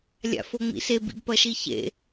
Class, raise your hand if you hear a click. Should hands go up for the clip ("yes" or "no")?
no